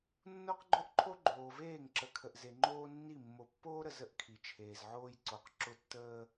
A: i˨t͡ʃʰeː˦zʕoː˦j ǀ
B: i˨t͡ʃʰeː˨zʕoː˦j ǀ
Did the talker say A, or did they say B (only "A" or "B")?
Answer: B